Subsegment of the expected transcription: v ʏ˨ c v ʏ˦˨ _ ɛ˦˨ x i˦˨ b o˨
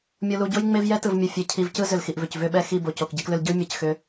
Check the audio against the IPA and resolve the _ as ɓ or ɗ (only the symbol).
ɓ